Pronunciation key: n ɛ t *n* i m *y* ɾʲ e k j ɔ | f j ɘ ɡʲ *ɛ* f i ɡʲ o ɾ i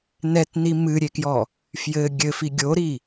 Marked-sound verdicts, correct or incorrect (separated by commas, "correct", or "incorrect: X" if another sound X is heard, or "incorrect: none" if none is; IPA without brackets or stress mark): correct, incorrect: ɨ, incorrect: ɘ